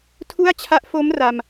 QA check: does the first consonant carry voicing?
no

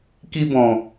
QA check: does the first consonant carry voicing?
no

